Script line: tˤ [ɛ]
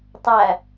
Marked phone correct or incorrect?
incorrect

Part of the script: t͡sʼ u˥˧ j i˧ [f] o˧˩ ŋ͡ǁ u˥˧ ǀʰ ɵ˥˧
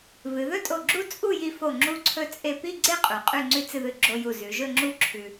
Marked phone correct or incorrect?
correct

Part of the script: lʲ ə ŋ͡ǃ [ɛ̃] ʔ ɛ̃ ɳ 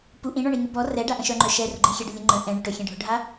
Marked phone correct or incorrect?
incorrect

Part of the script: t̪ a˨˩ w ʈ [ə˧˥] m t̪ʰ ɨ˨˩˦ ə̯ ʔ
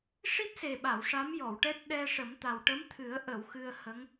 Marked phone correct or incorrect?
correct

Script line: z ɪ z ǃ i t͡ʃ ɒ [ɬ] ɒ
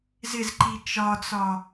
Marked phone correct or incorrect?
incorrect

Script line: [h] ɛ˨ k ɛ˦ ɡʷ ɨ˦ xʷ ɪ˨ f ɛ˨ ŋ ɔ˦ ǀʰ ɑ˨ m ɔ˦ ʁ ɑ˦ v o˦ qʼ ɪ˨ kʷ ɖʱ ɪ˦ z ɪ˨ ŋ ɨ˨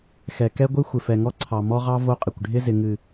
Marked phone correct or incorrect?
incorrect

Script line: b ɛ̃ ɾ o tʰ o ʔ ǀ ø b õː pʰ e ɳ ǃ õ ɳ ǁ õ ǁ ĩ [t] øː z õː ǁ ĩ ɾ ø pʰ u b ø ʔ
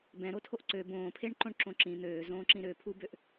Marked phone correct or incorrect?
incorrect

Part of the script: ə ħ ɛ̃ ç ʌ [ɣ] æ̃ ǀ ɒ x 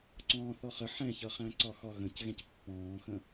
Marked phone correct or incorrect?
incorrect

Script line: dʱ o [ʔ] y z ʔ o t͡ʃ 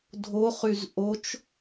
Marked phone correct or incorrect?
incorrect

